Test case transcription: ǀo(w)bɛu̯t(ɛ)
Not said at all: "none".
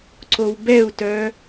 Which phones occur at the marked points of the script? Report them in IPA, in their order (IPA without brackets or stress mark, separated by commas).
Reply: w, œ